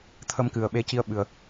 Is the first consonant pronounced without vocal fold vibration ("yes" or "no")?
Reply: yes